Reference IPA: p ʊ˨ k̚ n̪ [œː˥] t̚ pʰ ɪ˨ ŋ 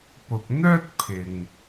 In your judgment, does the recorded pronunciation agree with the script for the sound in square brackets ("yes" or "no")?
yes